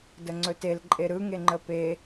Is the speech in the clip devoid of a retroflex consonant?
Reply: yes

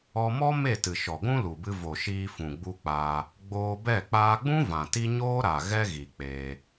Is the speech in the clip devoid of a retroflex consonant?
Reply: yes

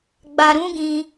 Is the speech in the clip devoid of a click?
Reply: yes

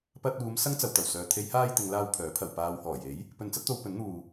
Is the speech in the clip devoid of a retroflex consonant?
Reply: yes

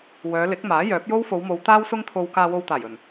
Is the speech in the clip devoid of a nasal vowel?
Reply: yes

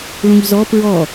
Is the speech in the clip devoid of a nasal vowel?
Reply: no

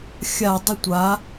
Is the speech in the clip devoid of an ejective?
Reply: yes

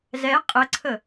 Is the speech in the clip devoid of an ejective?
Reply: no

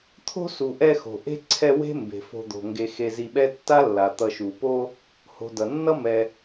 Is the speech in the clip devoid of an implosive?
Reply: no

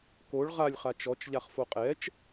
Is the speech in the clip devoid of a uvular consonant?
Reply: no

